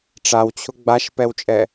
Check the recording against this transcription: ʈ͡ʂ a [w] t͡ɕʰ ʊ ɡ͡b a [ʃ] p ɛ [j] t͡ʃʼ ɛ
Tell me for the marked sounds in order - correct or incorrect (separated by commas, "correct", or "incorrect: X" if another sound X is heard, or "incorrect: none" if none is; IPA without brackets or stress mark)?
correct, correct, incorrect: w